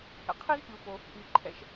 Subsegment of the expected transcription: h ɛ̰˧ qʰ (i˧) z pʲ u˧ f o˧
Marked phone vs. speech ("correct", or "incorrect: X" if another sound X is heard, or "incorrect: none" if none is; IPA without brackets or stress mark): incorrect: i˥